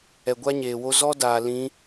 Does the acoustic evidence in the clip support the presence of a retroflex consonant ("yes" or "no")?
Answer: no